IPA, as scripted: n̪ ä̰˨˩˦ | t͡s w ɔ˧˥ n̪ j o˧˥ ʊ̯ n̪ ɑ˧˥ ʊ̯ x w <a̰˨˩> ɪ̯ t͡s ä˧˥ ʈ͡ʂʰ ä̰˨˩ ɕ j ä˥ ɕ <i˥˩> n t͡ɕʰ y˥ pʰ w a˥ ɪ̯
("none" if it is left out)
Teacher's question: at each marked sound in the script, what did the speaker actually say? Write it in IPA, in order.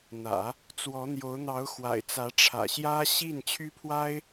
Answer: a̰˨˩, i˥˩

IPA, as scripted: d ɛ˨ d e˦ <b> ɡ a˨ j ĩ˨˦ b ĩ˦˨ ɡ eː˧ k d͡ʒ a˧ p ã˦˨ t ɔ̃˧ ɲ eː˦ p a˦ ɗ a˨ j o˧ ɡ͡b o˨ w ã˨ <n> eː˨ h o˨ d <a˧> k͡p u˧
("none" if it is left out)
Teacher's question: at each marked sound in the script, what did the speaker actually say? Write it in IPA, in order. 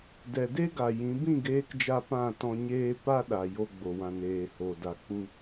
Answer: none, n, a˨

